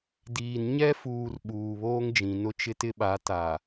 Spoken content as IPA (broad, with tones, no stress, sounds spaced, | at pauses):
d iː˨ n ɲ ɛ˦ f uː˨ r ɓ uː˨ β oː˦ ŋ d͡ʒ ĩ˨ n ʊ˦ t͡ʃ ɪ˦ t ɪ˦ ɓ a˨˦ t a˨